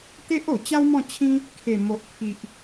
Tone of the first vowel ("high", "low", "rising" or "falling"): high